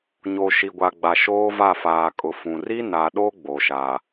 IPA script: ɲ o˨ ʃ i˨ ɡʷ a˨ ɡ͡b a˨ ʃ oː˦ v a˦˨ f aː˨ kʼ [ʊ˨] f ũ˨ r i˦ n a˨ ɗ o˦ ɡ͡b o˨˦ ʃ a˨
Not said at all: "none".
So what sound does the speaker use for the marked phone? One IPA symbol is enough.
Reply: ʊ˨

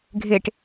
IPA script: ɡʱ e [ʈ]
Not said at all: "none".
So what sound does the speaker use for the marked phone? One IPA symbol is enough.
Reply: ʈ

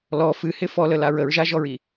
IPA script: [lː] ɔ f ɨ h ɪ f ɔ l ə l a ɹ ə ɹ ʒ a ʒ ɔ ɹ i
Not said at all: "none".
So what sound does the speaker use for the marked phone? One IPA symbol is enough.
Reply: l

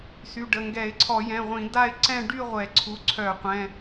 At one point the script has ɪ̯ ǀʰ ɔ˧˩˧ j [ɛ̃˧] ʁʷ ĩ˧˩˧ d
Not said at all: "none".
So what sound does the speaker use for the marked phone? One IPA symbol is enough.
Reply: ɛ̃˩˧˩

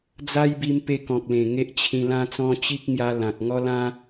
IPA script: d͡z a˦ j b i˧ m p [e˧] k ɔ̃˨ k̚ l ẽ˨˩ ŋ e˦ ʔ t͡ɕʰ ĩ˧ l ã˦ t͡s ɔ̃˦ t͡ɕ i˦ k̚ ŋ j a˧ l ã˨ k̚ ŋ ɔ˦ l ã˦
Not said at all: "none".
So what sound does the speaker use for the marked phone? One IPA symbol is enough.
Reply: e˧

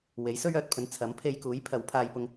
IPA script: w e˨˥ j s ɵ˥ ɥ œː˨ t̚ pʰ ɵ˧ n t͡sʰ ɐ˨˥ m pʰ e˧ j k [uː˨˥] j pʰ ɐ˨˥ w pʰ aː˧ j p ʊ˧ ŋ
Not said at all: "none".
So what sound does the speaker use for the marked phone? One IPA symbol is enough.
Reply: uː˨˥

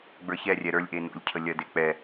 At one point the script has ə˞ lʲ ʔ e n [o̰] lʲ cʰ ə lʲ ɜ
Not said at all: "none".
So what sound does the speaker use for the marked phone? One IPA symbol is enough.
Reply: o̰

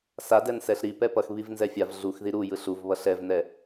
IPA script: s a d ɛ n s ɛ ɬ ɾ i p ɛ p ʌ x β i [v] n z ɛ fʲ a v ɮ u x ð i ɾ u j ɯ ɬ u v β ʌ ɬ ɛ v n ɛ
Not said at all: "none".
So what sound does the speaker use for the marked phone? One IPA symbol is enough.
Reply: v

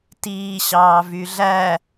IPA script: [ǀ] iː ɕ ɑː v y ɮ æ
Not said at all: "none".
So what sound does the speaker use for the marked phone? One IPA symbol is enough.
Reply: t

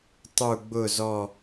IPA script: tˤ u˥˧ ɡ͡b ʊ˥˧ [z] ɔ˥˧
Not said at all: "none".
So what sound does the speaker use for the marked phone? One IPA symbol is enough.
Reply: z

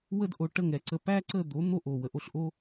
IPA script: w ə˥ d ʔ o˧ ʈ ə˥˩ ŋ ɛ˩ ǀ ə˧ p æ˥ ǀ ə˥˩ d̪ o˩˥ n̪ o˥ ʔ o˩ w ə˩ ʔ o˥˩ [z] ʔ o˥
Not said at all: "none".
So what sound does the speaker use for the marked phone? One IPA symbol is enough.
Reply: ɬ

